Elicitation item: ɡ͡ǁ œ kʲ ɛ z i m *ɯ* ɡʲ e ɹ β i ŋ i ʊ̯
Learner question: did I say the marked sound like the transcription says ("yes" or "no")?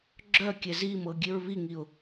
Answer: no